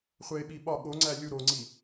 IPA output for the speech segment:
χʷ e ɓ i ɓ ɒ ɠ o ŋ͡ǀ æ lʲ u ɾ o ŋ͡ǀ i

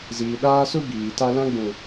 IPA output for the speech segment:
z iː˨ ɗ aː˦ s u˦ b iː˨ t a˦ l ã˦ ɡ͡b ũ˨

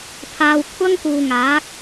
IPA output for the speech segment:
pʰ aː˨ w kʷʰ ɐ˥ ŋ k uː˨ ŋ aː˨˥ k̚

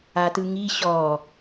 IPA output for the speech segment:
a t ɯ ŋ i ɕ ɔ

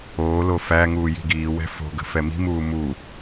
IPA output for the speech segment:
oː l o f æ ŋ uː j i̤ ɡ iː w ɛ̤ f o̤ ɡ ə̤ f ɛ m i̤ m uː m u

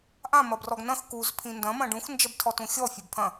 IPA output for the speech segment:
ʔ ã m ɐ b r ɔ ɡ n ɐ̃ x k u z pʰ ĩ n d ɐ̃ m ɐ̃ ɖ ũ x n d͡ʒ ɐ b tʰ ɔ t ũ xʲ ɔ fʲ ɛ b pʰ ɐ̃

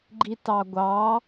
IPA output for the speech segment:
ɡ͡ǃ i t ɑ ɡʷ ɑ

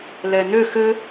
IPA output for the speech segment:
l ɛ n ø x ɘ

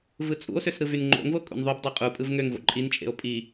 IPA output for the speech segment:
v ɯ t͡sʼ ṵ o̯ s ø s ɾ ɯ v y n ŋ͡ǃ o̰ ŋ v o kʼ ṵ n ðˤ y b dˤ æ qʼ u pʼ ɯ v ŋ ø ŋ v o̰ ǃʼ i n t͡ʃʼ ḛ o̯ pʼ i

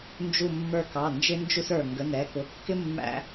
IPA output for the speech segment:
n d͡ʒ u˧˩ mː ə˞˧˩ k ɑ˩˧˩ n d͡ʒ ɪ˥ n d͡ʒ u˥ s ə˞˧˩ ŋ ɡ ə˩˧˩ n ɛ˩˧˩ k ʊ˩˧˩ kː ɪ˥ mː æ̰˥

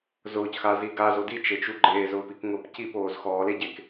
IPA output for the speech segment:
z ʊː c x a z i ɡ a z o d i t͡ʃ e t͡ʃ u ɡ͡ǃ eː z ʊː p i k ŋ ʊː p c i p oː z x ɔː l e ɟ e k

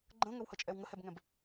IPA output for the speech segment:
ɡ͡ǃ ə̃ ŋ ə w h ə t͡ʃʼ ɛ w ŋ ə h ɛ b ŋ ɛ̃ b

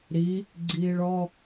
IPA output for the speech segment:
ɾ i | ɡ͡ǀ iː ɭ ɔ

